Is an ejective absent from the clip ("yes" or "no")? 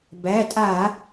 no